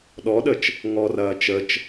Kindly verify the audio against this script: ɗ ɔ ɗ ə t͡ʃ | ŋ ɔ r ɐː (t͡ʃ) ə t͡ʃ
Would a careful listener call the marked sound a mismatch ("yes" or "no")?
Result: no